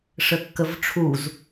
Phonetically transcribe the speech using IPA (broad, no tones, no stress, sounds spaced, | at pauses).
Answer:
ʂ ə kː ə v ʈ͡ʂʰ u z